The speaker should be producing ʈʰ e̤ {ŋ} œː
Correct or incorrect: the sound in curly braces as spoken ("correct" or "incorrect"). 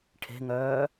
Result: correct